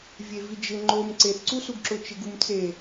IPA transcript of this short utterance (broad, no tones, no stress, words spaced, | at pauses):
vʲevid͡ʒɪ ŋ͡ǃom ǀeθǀusuɡǁʊ t͡ʃɪɡumt͡se